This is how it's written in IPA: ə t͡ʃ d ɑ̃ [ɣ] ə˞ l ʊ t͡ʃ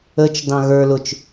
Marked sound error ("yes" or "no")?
no